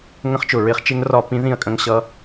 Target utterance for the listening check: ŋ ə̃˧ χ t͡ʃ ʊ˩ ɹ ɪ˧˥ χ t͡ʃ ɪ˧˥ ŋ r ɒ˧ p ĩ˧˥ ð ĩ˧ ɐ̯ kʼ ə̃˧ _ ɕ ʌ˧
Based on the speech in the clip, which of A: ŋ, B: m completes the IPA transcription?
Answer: A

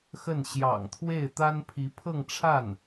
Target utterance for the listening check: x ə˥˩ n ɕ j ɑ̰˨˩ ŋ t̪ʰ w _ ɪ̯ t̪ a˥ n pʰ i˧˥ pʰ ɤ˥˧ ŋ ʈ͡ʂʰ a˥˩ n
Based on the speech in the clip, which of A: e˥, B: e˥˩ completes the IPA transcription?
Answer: B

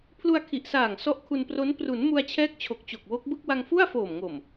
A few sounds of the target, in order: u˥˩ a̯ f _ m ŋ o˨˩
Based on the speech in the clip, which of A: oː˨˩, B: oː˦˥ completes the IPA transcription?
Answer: A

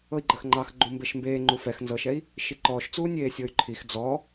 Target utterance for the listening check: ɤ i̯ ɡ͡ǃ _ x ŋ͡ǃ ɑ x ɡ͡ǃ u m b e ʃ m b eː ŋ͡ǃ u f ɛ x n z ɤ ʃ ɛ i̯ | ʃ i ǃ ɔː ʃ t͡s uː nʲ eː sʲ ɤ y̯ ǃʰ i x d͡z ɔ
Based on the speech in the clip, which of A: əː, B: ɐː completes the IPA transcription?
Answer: A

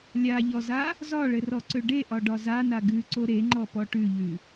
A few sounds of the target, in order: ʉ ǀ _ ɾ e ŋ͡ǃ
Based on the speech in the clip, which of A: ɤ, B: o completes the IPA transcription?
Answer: B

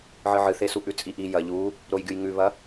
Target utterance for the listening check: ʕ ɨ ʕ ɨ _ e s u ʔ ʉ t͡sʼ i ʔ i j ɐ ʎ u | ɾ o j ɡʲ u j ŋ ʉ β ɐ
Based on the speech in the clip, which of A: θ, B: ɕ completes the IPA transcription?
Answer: A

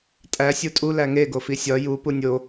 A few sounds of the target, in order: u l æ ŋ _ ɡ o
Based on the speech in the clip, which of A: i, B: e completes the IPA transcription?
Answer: B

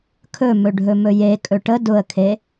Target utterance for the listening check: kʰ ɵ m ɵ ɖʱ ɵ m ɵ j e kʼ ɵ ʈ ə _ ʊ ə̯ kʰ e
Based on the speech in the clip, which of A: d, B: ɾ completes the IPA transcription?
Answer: A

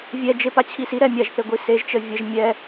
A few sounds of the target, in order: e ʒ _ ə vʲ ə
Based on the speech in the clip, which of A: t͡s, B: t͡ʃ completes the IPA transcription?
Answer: B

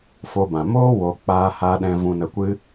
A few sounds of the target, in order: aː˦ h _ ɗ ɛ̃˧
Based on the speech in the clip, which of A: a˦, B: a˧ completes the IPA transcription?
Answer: A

